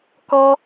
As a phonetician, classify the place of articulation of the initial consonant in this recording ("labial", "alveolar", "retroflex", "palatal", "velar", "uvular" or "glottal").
velar